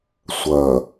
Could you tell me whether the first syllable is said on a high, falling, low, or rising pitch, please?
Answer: low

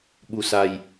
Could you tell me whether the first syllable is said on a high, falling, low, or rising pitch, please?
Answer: low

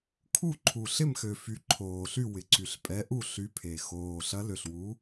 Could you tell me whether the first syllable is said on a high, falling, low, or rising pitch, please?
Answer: falling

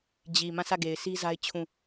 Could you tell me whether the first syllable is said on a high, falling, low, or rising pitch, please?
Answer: low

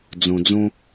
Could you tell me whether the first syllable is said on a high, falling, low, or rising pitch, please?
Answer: low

